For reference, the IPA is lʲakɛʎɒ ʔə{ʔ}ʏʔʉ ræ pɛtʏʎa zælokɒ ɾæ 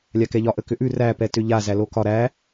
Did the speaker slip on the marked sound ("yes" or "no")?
yes